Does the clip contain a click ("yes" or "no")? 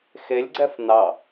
yes